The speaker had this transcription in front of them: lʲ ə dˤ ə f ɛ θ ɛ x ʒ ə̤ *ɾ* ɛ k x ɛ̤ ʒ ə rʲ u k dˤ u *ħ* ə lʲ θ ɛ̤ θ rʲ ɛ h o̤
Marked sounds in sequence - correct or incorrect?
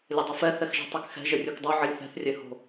incorrect, incorrect

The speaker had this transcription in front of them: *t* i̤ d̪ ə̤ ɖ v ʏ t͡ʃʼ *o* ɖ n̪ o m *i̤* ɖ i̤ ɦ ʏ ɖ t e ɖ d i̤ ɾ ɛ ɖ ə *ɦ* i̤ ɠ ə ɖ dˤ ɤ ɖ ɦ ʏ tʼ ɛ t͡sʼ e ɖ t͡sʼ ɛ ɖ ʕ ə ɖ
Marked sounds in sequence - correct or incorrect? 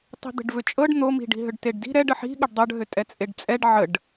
incorrect, incorrect, correct, incorrect

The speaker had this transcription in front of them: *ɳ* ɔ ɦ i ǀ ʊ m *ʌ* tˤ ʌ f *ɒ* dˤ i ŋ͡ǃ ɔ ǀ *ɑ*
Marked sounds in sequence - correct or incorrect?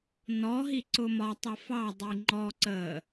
incorrect, incorrect, incorrect, incorrect

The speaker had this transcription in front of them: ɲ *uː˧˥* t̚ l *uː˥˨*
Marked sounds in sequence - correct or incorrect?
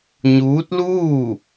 correct, correct

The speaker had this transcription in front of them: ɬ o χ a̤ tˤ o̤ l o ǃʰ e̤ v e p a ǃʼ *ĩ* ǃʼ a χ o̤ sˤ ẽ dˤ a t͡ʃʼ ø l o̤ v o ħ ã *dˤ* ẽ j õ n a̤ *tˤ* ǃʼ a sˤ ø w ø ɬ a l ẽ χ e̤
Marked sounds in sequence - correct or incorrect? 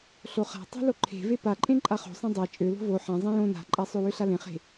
incorrect, incorrect, incorrect

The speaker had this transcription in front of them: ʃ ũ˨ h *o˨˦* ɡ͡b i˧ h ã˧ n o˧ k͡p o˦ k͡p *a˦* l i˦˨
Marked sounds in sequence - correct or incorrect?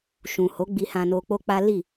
correct, correct

